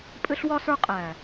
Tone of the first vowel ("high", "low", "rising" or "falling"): high